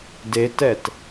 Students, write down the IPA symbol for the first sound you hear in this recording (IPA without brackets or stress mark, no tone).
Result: d